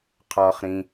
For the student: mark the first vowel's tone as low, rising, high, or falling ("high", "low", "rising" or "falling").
low